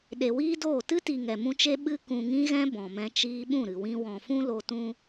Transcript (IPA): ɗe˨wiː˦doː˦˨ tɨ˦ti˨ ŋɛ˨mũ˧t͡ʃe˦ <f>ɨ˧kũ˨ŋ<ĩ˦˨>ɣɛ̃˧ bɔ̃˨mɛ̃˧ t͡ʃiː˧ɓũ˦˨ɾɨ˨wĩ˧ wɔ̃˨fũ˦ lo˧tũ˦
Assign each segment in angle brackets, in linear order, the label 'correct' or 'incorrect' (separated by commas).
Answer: incorrect, incorrect